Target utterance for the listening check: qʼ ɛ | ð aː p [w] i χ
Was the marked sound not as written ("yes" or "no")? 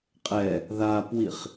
no